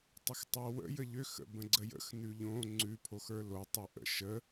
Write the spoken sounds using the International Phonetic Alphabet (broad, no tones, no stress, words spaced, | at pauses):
tˤəxtˤowə̰ jəʎøx ə̰bə̃ɡ͡ǀəjə̰x nʉʎõ ŋ͡ǀʉ pʰoxə˞lo tˤuʔə̰ ʃə